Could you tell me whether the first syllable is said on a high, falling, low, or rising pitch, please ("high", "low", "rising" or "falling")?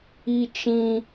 high